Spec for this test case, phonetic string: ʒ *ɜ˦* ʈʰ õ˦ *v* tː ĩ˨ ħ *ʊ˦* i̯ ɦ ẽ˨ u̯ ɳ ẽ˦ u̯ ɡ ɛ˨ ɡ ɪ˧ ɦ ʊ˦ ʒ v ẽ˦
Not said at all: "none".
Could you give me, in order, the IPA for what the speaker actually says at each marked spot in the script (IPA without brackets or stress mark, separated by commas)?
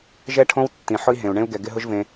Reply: ɛ˦, w, ʊ˦